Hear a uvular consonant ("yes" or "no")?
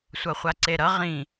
yes